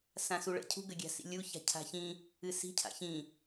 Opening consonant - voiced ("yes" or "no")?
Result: no